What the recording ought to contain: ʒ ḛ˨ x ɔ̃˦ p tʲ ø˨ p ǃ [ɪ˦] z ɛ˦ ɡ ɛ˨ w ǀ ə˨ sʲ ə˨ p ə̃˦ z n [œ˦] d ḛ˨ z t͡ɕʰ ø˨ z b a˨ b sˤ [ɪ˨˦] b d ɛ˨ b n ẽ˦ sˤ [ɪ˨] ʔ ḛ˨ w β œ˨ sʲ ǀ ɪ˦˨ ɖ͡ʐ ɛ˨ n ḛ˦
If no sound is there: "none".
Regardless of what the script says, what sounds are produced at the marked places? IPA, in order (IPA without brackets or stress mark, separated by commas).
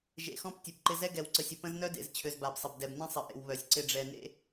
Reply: ɪ˦, œ˦, ɪ˨, ɪ˨